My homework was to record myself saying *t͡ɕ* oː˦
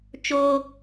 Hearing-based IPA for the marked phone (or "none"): t͡ʃ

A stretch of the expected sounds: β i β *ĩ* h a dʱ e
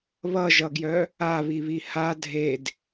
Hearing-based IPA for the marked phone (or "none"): i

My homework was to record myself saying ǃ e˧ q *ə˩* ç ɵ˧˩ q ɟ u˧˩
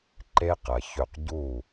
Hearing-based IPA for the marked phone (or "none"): ɐ˩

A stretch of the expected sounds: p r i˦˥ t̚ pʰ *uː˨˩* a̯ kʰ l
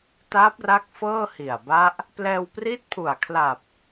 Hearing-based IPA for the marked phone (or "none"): u˨˩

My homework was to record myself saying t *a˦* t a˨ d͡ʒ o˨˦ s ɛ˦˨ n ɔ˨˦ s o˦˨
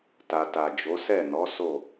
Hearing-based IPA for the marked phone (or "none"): a˨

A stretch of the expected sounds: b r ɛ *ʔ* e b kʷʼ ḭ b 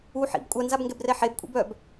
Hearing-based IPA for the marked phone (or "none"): ħ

